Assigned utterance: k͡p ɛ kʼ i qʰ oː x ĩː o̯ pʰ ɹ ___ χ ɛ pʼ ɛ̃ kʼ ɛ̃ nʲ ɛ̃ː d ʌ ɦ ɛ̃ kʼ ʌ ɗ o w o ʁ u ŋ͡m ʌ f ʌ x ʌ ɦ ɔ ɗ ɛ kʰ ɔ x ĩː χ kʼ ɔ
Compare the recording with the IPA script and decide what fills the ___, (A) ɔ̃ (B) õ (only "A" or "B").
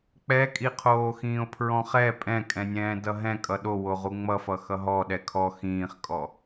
A